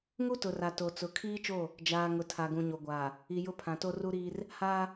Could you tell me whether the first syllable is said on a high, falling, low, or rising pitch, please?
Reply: high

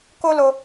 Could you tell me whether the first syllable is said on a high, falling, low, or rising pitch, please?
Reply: high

